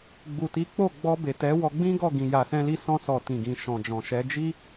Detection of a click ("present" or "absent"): absent